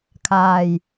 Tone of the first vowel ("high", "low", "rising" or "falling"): low